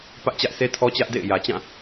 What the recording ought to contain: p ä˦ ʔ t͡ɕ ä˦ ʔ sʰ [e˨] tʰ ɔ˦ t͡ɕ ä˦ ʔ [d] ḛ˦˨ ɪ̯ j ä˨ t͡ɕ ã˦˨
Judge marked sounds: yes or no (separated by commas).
no, yes